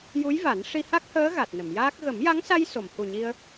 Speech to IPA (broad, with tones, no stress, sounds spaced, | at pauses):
j u˧˥ j v a˨˩˦ n ʂ i˧ h a˦˥ k̚ h əː˧˥ ɣ a˨˩ t̚ n ə˨˩˨ m j aː˦˥ k̚ ɣ ə˨˩˦ m j a˧˥ ŋ s a˧ j s o˨˩˨ m h u˨˩ ɲ i˧ ə̯